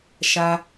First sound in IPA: ʃ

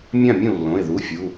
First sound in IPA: mʲ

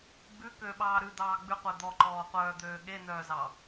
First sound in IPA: ɡ͡b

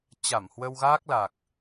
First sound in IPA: t͡ɕ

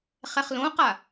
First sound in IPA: χ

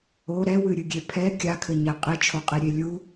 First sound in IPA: o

